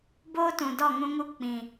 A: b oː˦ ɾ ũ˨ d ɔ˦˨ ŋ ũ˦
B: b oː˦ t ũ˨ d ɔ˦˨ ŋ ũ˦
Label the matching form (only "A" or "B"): B